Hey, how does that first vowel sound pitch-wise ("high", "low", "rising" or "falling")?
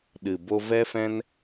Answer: low